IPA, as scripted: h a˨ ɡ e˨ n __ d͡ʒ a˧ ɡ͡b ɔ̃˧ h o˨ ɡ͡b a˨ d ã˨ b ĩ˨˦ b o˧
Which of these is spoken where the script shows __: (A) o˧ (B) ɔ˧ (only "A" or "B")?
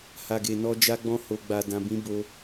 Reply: B